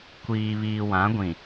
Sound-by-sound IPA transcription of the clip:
kʷ iː˨ β iː˨ w ã˨˦ ɡʷ ĩ˨

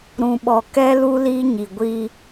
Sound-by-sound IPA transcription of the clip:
ɾ ũ˨ ɓ ɔ˨ k ɛ˦ l u˦ l iː˦ ɲ i˨ ɡʷ i˦

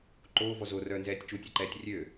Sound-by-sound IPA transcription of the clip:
ǃ oː v ɔ z o r œː n z ɛː tʲ t͡ʃ u tʲ e ǃ ɛː tʲ rʲ ø

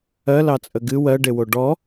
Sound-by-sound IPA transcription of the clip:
ɜ l ɑ t͡sʼ ə ɡ ɨ w ɜ ɖ e w o ɖ ɔ

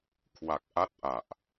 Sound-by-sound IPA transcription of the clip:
kʰ w a˨˩ k̚ ʔ a˦˥ t̚ ʔ a˨˩ ʔ

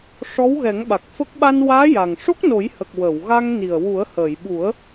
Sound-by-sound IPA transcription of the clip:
ʂ ɔ˧˥ w ɣ ɛ˨˩˦ ŋ ɓ a˨˩ k̚ f ə˦˥ k̚ ɓ a˧ n w aː˧˥ j a˨˩ ŋ ʂ o˦˥ k̚ n o˨˩˦ j h ə˨˩ k̚ w ə˨˩˨ w ɣ a˧ ŋ n i˨˩ ə̯ w u˨˩˦ ə̯ h əː˨˩˨ j ɓ u˨˩˦ ə̯

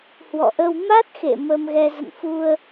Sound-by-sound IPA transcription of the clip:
h w ɔ̰˧˨ ʔ ə˧ w m a˦˥ t̚ x ḛ˧˨ m ə˧ m ɣ ɛ˧ z ə̰˧˨ n f u˧ ə̯

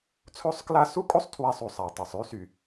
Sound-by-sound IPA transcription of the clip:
t͡sʰ o˥˧ sˤ k l a˥˧ s u˥˧ kʼ o˥˧ sˤ tʰ w a˧˩ sˤ u˩ sˤ a˩ tˤ o˩ sˤ y˥˧ s y˩

